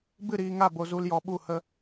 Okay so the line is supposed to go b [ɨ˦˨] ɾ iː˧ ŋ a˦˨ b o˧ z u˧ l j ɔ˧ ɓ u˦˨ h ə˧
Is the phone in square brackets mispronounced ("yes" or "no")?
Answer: no